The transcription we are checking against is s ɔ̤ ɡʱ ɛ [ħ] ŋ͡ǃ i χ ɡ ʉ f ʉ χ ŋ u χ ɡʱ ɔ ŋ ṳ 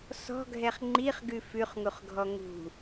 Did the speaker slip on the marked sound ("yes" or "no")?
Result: yes